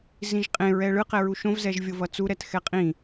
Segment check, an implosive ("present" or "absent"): absent